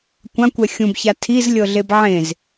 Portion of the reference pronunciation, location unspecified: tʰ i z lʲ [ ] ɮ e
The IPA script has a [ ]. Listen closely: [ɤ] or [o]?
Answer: ɤ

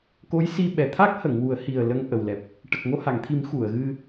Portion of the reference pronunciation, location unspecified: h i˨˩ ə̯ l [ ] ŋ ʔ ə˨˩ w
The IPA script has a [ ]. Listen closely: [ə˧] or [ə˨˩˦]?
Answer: ə˧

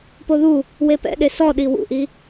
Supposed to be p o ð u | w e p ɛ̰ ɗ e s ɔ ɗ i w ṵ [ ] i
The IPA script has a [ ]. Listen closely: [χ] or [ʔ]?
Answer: ʔ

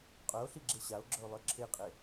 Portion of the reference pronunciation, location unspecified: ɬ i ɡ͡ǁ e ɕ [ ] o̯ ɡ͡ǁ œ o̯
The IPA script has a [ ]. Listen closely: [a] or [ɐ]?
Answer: a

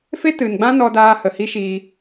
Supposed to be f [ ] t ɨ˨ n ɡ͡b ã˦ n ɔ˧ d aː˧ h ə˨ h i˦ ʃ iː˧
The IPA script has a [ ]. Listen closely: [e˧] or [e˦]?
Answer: e˦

